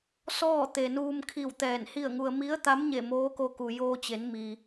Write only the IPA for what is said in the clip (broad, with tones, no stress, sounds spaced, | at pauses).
s ɔː˥˨ t̪ e˩ n uː˧ m kʰ i˧˩ w t̪ ɛː˧˩ n h i˥˨ ə̯ ŋ u˧ ə̯ m i˧˥ ə̯ t̪ a˧˥ m ɲ e˧˩ m oː˧˥ k o˧ k u˩ j oː˧ t͡ɕ e˩˧ n m i˩